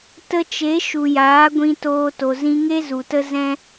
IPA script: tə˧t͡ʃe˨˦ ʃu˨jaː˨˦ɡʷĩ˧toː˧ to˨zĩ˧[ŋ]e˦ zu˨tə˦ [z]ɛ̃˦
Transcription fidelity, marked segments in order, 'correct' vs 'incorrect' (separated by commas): correct, correct